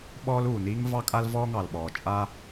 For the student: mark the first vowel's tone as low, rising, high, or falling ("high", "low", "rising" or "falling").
high